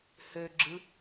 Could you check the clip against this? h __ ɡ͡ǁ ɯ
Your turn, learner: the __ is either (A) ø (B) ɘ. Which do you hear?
A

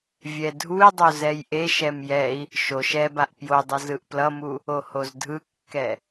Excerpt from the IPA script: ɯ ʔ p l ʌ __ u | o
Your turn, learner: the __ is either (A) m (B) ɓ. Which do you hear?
A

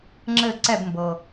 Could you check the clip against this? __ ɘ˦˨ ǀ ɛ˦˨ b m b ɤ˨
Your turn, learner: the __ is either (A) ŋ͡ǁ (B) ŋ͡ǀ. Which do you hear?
A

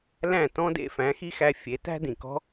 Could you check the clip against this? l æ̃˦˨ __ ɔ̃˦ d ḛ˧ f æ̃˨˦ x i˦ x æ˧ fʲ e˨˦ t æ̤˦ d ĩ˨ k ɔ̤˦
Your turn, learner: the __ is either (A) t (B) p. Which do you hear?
A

